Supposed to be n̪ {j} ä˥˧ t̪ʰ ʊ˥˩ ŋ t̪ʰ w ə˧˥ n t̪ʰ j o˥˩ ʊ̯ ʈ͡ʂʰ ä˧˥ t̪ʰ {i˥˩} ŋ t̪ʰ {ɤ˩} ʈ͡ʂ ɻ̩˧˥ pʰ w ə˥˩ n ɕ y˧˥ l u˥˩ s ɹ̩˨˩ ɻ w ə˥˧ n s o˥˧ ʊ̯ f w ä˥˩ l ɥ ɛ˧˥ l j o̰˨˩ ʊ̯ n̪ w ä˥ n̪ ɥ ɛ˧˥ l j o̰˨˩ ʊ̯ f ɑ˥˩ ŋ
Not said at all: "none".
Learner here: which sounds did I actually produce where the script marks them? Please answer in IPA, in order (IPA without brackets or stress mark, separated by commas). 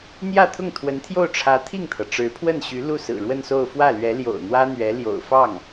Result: j, i˥˩, ɤ˩